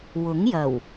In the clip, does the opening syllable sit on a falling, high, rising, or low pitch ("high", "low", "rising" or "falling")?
rising